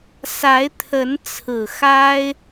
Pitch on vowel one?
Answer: rising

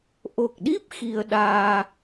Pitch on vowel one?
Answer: low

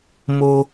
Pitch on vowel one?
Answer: high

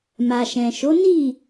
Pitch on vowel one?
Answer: low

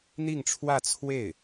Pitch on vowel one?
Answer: falling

